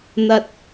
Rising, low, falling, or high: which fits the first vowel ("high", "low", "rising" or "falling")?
low